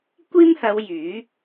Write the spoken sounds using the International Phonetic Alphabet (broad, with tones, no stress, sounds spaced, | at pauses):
kʷ iː˥ m h ɐ˨˧ w j yː˨˥